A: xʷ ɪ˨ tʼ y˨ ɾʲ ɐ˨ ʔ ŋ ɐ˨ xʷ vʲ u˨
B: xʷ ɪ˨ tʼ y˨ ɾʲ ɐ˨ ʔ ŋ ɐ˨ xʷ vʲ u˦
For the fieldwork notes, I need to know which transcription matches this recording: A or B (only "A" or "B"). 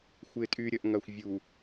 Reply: A